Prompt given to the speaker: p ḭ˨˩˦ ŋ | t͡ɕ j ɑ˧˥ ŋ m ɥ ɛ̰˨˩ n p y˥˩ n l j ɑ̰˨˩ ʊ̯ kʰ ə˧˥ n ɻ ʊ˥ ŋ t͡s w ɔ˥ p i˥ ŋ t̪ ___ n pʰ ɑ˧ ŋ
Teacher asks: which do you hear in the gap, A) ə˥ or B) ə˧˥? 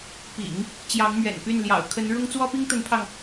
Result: B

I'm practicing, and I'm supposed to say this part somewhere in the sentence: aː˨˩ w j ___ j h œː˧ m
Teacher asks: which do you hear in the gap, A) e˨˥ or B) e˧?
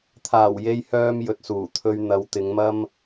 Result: B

